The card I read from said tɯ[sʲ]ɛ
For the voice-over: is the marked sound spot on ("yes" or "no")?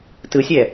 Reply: yes